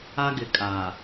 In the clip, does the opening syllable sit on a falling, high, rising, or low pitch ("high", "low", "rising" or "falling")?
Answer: high